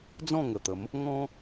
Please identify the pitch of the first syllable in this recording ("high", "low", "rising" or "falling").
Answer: falling